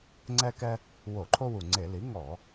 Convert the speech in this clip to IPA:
ŋ͡ǀɛ˦kɛ˦ | wo˧˩˧ǃʰo˦wu˨˩ŋ͡ǀe˧˩˧ li˩˥ŋɔ˧˩˧

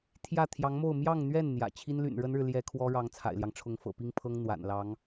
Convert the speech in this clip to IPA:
t̪ʰjä˥˩ t̪ʰjɑ˧˥ŋmo˥˧ʊ̯ mjɑ˥˧ŋn̪ɥɛ˥˩n n̪jä̰˨˩ t͡ɕʰi˥nly̰˨˩nɻə˥nɻɻ̩˨ ljɛ˥ kʰwɔ˥ɻɑ˧˥ŋ t͡sʰa̰˨˩ɪ̯ljɑ˦ŋʈ͡ʂʰʊ˧˥ŋ fɤ̰˨˩pi˥ŋpʰɤ˥ŋ n̪wa̰˨˩nlɑ˧˥ŋ

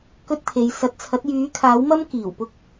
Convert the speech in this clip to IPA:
kɵ˥t̚t̪ʰe˨˧j sɐ˨˥t̚t͡sʰɐ˨˥t̚ jyː˨˥kʰaː˨˥wmɐ˥m kiː˨˩wpʊ˥k̚

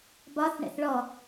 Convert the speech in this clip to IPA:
bɒθ ɳɛ̰θɭɔ

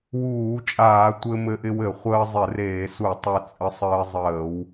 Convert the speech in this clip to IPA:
wuː˧˩˧t͡ʃʼaː˧˩˧ tʷɘ˧mɘ˧ʔɪ˧wɘ˧˩˧ χʷəː˧zˤɪ˧˩˧reː˧˩˧su˧˩˧ tˤɘ˧t͡sʼə˧sˤɘː˧zˤəː˧˩˧w

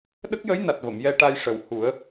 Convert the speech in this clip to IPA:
ɗə˦˥k̚jə˧˥jna˨˩t̚ və˨˩˨mjɛ˧ʈa˧j ʂə˨˩˦whu˨˩˦ə̯

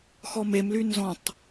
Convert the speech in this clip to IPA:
xɔmemly nzɔ̃tˤ

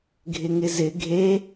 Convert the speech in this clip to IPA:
ɡʱɪŋɪzɪ ɡʱe

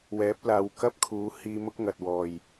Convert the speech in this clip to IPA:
wɛː˨˥p̚ laː˨˧wkɐ˥p̚kʰuː˨˥ hiː˧mʊ˥k̚ ŋɐ˨t̚ wɔː˨˩j

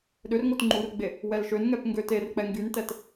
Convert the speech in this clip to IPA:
ɗørŋot ŋ͡ǃurɡ͡be | wɛlʃønŋɛp ŋɡøterk͡pɛ ŋɡyntɛt

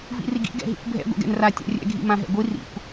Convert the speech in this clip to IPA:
vḭriɡḭ ɡɛ̰ɦḭkʷbʱɛ̰ ɡʷɛ̰ɡɛ̰nra tʲa̰rʲɛ̰ ɡʱḭmãɦɛ̰ɡʷi rḭkʷ

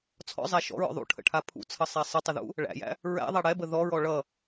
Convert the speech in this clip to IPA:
t͡sʰɔ̰zˤæ ʃɔ̰ɹɔ̰ ðˤṵʈʰə̰ʈʰa pʰṵt͡sʰʌsˤæ sˤətˤəðṵ | ɭæ̰jæ̰ | ɹæ̰ðˤæ ɽɛbə ðɔɹɔ ɭʌ

